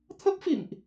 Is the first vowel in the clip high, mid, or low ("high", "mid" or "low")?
mid